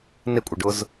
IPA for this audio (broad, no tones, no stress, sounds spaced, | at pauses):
n ɪ kʷʼ ə ɖ ʊ z